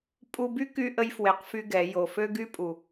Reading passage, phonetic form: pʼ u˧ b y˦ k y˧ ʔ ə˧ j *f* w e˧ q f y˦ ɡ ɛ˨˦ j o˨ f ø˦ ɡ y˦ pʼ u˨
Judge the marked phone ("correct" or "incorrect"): correct